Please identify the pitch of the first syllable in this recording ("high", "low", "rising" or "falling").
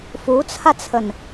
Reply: rising